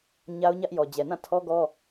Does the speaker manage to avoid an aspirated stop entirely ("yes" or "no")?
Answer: no